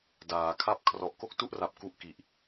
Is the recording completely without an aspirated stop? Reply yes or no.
no